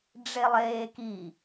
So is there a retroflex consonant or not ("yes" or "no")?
yes